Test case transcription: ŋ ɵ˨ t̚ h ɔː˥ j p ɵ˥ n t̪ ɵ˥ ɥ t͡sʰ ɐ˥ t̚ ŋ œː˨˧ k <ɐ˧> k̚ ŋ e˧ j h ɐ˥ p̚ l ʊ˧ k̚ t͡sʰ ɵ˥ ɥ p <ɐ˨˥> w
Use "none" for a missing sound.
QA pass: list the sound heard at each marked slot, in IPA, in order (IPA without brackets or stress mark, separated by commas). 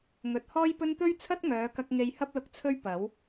ɐ˧, ɐ˨˥